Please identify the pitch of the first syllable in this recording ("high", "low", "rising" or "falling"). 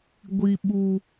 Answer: high